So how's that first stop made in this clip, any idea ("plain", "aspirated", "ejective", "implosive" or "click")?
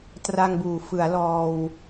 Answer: plain